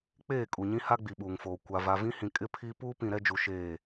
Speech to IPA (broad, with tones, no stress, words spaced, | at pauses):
k͡peː˦˨kʼu˨ɲĩ˦ ha˦ɡ͡bi˨ɓuː˨ŋfoː˨ kʷa˨ va˨vĩ˦hĩ˨ kʼɪ˦pʰi˦ puː˦pĩ˨ ɾɛ˦d͡ʒu˨ʃeː˦˨